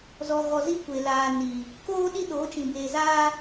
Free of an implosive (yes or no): no